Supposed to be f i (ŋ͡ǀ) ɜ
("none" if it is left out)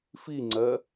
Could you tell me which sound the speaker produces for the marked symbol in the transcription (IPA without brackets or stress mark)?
ŋ͡ǀ